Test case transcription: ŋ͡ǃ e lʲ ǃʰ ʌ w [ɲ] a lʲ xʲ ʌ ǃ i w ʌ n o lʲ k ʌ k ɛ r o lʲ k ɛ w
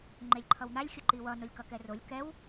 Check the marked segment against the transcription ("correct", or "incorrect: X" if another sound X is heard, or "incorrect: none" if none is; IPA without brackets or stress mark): incorrect: n̪